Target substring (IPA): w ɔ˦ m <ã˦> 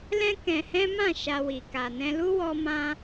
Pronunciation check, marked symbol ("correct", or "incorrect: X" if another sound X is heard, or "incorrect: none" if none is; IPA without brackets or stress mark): correct